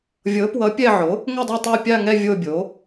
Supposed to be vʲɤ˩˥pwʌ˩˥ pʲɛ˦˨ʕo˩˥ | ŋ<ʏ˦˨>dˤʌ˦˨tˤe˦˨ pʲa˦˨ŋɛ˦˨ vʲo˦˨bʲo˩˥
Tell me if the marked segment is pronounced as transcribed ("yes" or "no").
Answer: yes